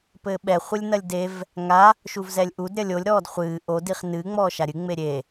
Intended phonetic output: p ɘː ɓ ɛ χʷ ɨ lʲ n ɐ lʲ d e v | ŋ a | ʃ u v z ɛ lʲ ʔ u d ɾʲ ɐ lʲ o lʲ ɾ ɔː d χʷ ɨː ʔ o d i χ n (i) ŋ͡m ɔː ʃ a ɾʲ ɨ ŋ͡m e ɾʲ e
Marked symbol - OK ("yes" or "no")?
no